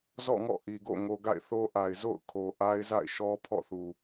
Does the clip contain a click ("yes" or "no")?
no